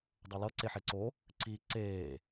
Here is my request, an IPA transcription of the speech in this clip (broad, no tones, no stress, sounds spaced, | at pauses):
dˤ ʌ l ʌ ǀ e ħ e ǀ o | ǀ i ǀ eː